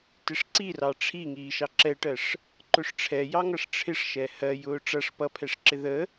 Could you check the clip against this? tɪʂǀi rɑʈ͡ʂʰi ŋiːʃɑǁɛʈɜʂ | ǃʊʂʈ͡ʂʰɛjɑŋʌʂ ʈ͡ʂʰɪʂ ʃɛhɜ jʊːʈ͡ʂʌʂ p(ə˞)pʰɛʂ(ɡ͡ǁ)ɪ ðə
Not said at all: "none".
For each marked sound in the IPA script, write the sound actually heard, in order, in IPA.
ʌ, ǁ

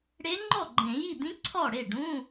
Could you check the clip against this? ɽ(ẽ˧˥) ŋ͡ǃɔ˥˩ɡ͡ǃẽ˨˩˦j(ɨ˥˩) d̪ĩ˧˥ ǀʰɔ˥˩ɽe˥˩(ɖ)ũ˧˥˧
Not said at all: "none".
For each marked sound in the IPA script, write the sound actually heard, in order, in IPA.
e˧˥, i˥˩, ɖ

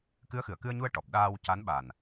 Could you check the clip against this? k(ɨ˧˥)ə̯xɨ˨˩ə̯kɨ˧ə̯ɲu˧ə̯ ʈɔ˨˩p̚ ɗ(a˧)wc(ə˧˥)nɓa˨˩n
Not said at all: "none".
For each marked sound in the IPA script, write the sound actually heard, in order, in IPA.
ɨ˧˥, aː˧, a˧˥

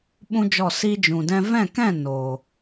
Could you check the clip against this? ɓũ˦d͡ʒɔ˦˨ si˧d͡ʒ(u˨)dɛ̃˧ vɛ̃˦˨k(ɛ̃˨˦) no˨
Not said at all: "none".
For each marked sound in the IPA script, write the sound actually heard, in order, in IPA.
ũ˨, ɛ̃˦˨

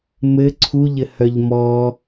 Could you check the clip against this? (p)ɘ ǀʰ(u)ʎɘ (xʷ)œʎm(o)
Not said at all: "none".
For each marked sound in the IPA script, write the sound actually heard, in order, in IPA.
m, u, h, ɔ

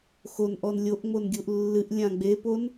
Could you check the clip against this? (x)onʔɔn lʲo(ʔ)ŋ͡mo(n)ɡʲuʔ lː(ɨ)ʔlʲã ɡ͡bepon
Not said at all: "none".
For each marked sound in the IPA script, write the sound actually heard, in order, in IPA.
x, ʔ, n, ɨ

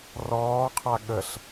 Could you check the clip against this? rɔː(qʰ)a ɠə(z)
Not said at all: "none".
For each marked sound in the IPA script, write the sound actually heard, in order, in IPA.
qʰ, ɬ

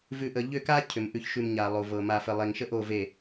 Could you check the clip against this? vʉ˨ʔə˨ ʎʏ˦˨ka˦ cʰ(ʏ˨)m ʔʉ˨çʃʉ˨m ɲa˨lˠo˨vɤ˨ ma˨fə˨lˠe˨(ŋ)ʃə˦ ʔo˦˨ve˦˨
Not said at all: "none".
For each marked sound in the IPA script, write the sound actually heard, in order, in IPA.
ʏ˨, ŋ

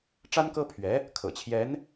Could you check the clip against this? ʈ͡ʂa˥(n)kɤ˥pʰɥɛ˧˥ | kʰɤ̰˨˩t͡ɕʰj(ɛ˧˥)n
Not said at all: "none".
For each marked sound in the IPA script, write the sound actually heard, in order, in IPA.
n, ɛ˧˥

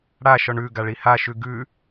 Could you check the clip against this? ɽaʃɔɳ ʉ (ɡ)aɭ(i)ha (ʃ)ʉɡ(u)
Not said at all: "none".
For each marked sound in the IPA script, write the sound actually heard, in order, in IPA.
ɡ, i, ʃ, ʉ

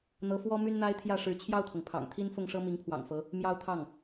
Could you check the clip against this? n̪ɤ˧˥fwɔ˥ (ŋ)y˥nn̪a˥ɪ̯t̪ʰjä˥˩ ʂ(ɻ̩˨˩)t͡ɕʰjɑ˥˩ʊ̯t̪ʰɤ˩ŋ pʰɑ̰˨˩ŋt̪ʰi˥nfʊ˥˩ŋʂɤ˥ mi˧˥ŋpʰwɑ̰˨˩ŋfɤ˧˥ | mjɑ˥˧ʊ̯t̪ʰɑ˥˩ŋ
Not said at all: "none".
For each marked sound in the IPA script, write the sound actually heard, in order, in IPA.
m, ɻ̩˧˥

